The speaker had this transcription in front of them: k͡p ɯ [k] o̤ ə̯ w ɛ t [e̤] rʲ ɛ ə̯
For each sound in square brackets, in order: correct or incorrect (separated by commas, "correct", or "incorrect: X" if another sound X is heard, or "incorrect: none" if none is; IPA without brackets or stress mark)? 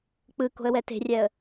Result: correct, correct